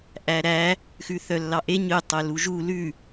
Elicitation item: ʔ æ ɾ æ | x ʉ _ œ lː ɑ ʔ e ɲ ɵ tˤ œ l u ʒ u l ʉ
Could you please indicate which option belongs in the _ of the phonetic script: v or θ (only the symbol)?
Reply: θ